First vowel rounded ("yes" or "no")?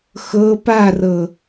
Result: no